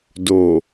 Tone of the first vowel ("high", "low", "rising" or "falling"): low